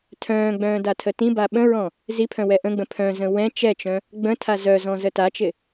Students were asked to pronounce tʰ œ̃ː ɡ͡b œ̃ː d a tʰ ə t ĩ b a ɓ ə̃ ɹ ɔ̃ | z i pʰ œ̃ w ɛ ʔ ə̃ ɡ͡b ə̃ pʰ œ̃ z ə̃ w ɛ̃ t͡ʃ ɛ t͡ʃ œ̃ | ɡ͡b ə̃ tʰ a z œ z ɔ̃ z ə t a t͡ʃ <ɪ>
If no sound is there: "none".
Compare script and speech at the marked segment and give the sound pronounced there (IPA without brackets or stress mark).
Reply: ɪ